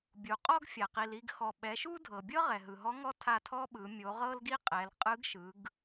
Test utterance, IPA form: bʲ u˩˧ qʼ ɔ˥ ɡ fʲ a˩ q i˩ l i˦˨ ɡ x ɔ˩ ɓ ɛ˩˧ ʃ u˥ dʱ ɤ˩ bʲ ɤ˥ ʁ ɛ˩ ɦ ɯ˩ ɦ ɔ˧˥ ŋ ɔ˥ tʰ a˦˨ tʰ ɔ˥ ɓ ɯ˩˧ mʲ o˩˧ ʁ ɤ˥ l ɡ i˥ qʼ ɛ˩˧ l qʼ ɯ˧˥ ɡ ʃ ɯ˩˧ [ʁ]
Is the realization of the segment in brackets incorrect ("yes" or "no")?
yes